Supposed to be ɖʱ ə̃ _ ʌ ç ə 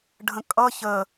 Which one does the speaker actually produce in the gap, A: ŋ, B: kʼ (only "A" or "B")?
B